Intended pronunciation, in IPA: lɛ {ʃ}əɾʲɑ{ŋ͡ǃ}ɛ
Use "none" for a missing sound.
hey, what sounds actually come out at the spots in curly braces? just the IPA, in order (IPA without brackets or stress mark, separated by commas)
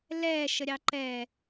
ʃ, ǃ